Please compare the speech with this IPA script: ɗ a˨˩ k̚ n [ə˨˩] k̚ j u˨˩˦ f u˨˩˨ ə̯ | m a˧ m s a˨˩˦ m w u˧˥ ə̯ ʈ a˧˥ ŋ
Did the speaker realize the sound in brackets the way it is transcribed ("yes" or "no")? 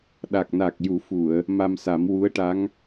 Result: no